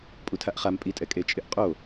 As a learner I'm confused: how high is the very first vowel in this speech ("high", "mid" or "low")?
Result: high